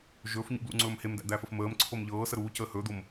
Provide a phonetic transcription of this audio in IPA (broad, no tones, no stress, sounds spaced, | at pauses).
ʒ ɵː f ɲ ṵ b l ṵ ŋ͡ǀ ɵː m h e m d æ̰ d̪ æː f ə f m əː m ǀʰ o m ʎ ɤː s ə ɾ uː c əː h ɵː d̪ o m